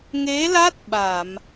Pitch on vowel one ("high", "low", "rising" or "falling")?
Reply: rising